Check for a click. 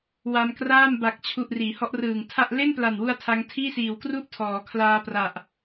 absent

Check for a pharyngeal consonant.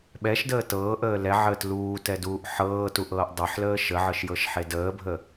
present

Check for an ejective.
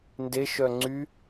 absent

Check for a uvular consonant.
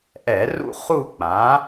present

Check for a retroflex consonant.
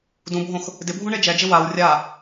present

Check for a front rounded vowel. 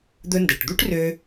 present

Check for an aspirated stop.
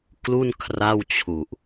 present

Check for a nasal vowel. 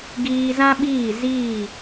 present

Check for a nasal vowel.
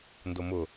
absent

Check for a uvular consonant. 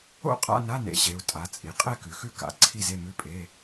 present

